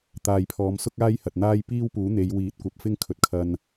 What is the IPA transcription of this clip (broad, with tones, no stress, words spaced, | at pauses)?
t̪aː˨jpʰɔː˨˧msʊ˥k̚ aː˥jhɐ˨t̚n̪aː˥j piː˥wpuː˨˥ n̪e˨˧jwiː˨˥t̚kʷɐ˨˥p̚ fɪ˥ŋkʰɵ˨˥t̚ kʰɐ˧n